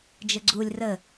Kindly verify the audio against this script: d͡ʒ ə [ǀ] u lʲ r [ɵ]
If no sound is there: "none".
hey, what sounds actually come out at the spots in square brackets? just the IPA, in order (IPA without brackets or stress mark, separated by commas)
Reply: ɡ͡ǀ, ə